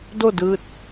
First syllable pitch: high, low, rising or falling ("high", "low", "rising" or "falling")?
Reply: falling